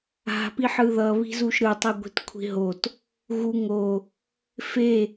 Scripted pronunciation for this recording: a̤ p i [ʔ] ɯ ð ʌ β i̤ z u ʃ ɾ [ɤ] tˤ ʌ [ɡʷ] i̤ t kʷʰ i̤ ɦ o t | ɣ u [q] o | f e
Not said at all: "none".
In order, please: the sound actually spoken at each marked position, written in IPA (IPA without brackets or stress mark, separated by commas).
ħ, ɯ, ɡʷ, ŋ